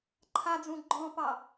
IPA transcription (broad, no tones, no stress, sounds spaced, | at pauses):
ǃʰ a d͡z ũ ɡ͡ǃ ɔ̃ p ɑ